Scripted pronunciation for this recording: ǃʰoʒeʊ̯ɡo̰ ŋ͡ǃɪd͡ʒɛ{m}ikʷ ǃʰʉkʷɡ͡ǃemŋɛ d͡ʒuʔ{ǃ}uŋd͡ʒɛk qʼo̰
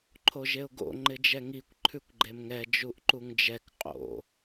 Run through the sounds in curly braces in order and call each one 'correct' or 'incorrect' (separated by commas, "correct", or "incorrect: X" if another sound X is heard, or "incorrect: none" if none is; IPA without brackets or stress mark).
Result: incorrect: ŋ, correct